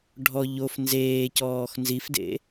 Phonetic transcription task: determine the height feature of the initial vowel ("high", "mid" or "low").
mid